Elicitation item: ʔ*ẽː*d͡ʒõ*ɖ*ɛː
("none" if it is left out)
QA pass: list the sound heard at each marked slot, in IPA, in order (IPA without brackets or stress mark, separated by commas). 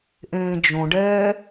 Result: ẽː, ɖ